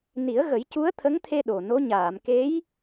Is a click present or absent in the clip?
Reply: absent